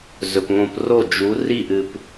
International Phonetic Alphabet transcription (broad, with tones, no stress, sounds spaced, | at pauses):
z ɵ˨ p ŋ õ˧ p r o˦˨ d͡ʒ u˨˦ r i˦˨ ʔ ɨ˧ p